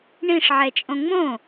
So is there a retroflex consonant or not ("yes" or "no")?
yes